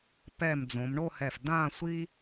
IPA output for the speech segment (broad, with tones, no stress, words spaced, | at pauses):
pɛ˧˩md͡zõ˩˧mɳo˥˧hɛ˧˩f dã˥˧sʷi˥